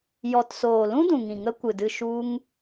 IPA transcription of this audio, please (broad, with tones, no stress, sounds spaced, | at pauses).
j ɔ˨ t s oː˨ l ũ˦ d ũ˨ ŋ ĩ˨ ŋ ə˦ kʷ ɨ˨ d ɨ˧ ʃ u˦ ŋ